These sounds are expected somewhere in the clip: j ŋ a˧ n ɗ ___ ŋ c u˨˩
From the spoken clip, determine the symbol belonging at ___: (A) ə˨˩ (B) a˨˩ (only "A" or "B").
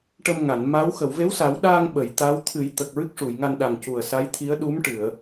B